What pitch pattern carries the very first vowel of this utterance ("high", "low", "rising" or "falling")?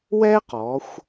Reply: high